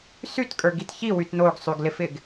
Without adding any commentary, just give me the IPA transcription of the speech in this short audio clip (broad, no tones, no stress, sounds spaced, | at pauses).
s y t kʼ ə˞ ɡ i t ç i w y t n o ɡ sˤ y ɡ l ɪ f ɪ ɡ